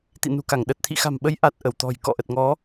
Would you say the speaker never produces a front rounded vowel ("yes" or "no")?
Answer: yes